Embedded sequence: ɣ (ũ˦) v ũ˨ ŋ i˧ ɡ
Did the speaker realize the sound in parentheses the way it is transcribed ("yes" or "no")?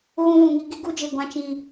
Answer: no